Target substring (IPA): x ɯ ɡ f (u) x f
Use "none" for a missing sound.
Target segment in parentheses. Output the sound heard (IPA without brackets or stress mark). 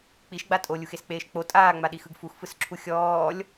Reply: u